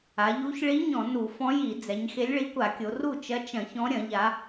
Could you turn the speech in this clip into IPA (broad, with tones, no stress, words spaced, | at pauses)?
a˩˧ʎu˧˥ç ɭi˧˥ ɲɔ̃˧˩˧ nu˧˩˧fɔ̃˧˥ji˧˩˧d͡zɛ˩˧ɲ xe˧˥lʲɭi˧˥kʷa˧˩˧kʲo˩˧ ru˥˩t͡ʃɐ˧˥ t͡ʃɐ̃˧˩˧çɔ̃˧˥ɾʲɐ̃˧˩˧ʎa˩˧